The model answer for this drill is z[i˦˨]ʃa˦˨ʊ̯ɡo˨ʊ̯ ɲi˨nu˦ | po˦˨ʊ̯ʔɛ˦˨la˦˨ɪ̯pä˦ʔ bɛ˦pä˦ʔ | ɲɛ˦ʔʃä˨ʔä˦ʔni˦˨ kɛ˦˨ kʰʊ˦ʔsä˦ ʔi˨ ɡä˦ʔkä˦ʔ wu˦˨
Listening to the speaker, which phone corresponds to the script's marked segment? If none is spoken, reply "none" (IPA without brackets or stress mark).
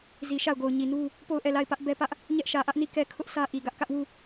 i˨